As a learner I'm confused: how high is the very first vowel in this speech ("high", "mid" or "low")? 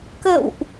mid